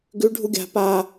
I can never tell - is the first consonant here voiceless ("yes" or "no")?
no